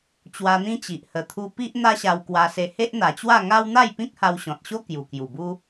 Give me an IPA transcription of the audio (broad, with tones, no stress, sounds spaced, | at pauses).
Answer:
t͡ɕ w a˧ n̪ ĩ˦ t͡ɕ i˨ ʔ h ə˨˩ t̪ʰ u˧ p i˦ ʔ n̪ a˦ ɕ a˧ w k w a˧ s e˧ h e˦ ʔ n̪ a˨˩ t͡ɕ w a˥˧ ŋ a˦ w n̪ a˥˧ j p ĩ˦ k̚ h a˧ w ɕ ɔ̃˨ t̚ ɕ o˦ k j u˨˩ k j u˨˩ b u˦